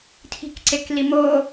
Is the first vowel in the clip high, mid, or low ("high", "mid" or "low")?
high